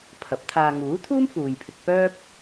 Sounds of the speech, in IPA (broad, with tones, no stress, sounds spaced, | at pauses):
pʰ ɐ˨˥ p̚ t̪ʰ aː˧ ŋ uː˨˥ t̪ʰ uː˥ m f uː˨ j pʰ ɪ˧ k̚ p œː˥ p̚